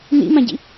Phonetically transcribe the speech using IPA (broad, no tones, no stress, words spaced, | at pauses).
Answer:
nḭmãɟḭ